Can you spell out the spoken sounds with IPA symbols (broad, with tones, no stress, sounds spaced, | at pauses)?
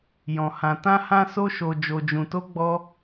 j ɔ̃˨ h ã˨ t ã˧ h ã˧ s o˧ ʃ o˨ d͡ʒ o˨ d͡ʒ ũ˨ t o˧ ɡ͡b ɔ˧